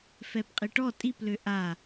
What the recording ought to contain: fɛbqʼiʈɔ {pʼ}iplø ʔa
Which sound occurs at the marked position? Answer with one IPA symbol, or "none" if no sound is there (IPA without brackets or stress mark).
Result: tʼ